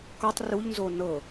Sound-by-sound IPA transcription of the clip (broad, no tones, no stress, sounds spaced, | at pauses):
k ɒ tˤ r u ʎ n z o n ɤ